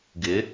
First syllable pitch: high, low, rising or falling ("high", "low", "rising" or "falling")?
rising